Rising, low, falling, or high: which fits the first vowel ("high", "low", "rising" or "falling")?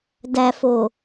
low